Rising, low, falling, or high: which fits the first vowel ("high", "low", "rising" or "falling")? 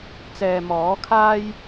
low